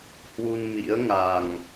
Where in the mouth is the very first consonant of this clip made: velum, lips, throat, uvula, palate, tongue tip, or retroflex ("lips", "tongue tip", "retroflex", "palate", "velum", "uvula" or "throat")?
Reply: throat